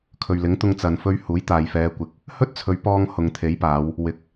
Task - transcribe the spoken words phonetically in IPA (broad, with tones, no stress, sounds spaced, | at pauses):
kʰ ɵ˨ ɥ l ɪ˨˥ ŋ t̪ ʊ˧ ŋ t͡s ɐ˨ n f ɵ˨˧ ɥ h uː˨˥ j t̪ aː˨ j f ɛː˨˧ kʷ ɪ˨˥ k̚ | h ɵ˥ t̚ t͡sʰ ɵ˨˧ ɥ p ɔː˧ ŋ h ʊ˨ ŋ t̪ʰ e˨˥ j p aː˨˧ w | w ɪ˨˥ k̚